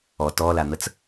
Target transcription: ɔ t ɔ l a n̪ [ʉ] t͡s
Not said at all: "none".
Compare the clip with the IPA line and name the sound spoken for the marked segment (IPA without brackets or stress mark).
ə